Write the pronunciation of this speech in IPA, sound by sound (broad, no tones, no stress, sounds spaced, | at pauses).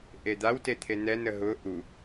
ʔ e d̪ a w t e t̪ʰ e n ɛ n ə ɦ ʊ ʔ u